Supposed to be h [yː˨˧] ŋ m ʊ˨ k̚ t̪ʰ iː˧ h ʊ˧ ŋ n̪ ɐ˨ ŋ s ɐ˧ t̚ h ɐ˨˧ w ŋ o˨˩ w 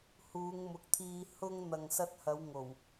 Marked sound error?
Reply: yes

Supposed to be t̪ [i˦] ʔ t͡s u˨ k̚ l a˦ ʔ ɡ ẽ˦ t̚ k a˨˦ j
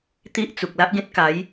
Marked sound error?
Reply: no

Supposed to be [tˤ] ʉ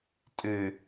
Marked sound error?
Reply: yes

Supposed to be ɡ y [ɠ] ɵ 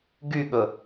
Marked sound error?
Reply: no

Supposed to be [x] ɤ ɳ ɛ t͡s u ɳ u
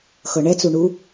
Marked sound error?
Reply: no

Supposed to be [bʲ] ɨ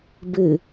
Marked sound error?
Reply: yes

